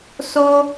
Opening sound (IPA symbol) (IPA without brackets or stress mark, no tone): s